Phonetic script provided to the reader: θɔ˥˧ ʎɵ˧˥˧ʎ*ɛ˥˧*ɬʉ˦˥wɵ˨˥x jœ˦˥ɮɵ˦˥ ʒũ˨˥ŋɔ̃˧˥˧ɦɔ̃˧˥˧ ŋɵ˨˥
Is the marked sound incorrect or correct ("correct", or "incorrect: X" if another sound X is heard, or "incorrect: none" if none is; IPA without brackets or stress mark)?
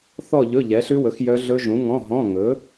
incorrect: ɛ˨˥